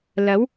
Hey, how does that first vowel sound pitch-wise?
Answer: rising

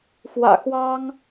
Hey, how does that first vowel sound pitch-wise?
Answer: low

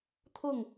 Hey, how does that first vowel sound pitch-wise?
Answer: falling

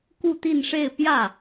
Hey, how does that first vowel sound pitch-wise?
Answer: falling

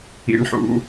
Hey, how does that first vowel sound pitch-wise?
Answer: high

